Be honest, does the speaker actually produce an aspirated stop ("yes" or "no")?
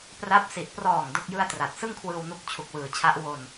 yes